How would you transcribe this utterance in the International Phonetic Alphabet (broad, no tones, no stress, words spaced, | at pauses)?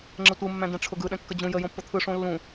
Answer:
ŋ͡ǁətʷɯ mːæ̃dɛ̃ʈ͡ʂʰʊɡɯ ɗɛ̃kːəd͡ʑũ jə jõpːʊt̪ʰɯ ʂõlːũ